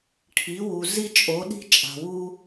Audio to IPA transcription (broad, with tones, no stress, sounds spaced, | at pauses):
ʈʰ i˩˧ w u˩ z i˧ t͡ʃʼ o˩˧ ɗ i̤˧ t͡ʃʼ a̤˩ w u˥